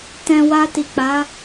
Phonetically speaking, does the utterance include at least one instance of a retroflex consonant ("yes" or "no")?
no